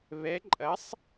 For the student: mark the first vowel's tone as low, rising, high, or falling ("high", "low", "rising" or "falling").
rising